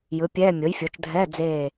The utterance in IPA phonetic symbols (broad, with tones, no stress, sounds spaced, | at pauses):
j ɯ˩˥ pʲ ɛː˧˥˧ mʲ o˩˥ j fʲ o˩˥ t͡ʃ dʱ ɛː˧˥˧ d͡z eː˦˨